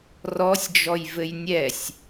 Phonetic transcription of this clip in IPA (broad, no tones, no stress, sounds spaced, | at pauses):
r ɔ sʲ d͡ʒ ɔ j v ɘ j nʲ ɛ sʲ